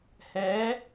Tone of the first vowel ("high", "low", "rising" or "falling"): rising